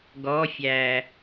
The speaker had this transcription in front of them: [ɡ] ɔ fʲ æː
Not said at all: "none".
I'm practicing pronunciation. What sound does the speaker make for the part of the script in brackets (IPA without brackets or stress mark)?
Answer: ɡ